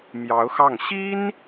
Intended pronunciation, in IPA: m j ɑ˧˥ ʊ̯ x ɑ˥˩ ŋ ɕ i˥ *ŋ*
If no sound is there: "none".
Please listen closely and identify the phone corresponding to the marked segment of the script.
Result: n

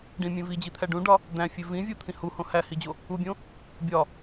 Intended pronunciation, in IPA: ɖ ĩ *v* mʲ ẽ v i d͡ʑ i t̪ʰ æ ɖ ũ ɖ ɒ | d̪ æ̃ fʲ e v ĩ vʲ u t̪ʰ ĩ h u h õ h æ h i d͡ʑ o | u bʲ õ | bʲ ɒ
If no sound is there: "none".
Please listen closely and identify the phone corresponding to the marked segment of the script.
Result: none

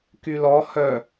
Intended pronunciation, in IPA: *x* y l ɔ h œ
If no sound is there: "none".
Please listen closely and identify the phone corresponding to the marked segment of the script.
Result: k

